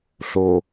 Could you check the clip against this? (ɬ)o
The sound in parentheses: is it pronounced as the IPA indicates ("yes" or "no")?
yes